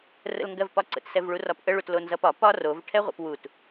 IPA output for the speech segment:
r ə̰ l ŋ ɡ ɜ v p ɒ ǀ ə̰ t s ɛ v ɭ u r ɒ p ʔ ə ɭ u t l o n z ʌ p ɒ p ɒ r o v ʈʰ ɛ ʁʷ ɛ̰ p w u t

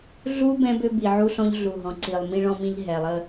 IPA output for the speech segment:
ɮ u˦ b ɛ̃˦ b ø˦ b i˨ ʕ u˦ ɬ ɔ̃˦ ʎ ɮ u˨ ɦ ɔ̃˨ ǀ i˨ lˠ m ĩ˦ ɭ ɔ̃˦ m ĩ˦ ʎ ɦ ɛ˨ lˠ ə˦

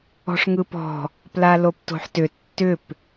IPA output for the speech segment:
ɔ̤ ʂ ŋ ɯ p ɔ̤ | p l a l o p t o̤ ħ t ʏ tː ʏ p

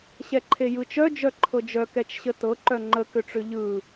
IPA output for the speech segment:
ɕ ɛ ǃʰ e j ɯ t͡ʃ œ d͡ʒ œ ǃʰ ɤ d͡ʒ œ k ɛ t͡ʃ ɕ ə t ɤ ǃ œ ŋ͡ǃ ə k ʏ ʈ͡ʂ ʏ ʎ ɯ

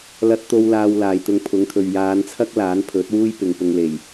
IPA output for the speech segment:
l ɐ˧ t̚ t̪ o˧ w l aː˧ w l aː˨ j t̪ ʊ˧ ŋ pʰ ʊ˨˥ ŋ t̪ʰ ɵ˨ ɥ j aː˨˧ n t͡sʰ ɐ˥ k̚ l aː˨˥ n pʰ ɵ˨˥ t̚ w uː˥ j p ɪ˨ ŋ p ʊ˧ ŋ l e˨˩ j

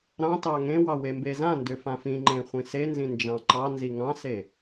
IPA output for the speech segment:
ɾ ɑ̃ t ɑ ŋ ẽ w ɑ w e m b e z ã n d ʏ f ã f ĩ ŋ͡ǃ ẽ χʷ ĩ s e n z ĩ n d͡ʒ ɑ̃ ǃ ɑ n z i ŋ ɑ̃ s e

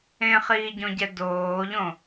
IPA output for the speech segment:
ẽ χ iː ɟ õ ɟ ɛ d oː ʎ õ

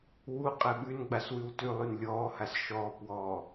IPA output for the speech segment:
w u qʼ ɛ ɓ ʉ n ɡ͡b a s w ʉ w t ʉ lˠ y n lʲ ɔː h a s ʃ ɔː p w ɔː

